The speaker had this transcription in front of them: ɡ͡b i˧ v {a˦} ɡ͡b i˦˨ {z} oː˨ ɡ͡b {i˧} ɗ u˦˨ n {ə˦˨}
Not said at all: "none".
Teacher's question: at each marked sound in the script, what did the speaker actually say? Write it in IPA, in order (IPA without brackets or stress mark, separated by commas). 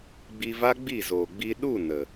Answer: a˦, z, i˧, ə˨